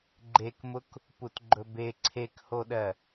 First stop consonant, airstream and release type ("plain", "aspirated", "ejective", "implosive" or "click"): click